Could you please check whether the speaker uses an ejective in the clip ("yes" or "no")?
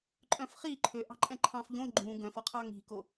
yes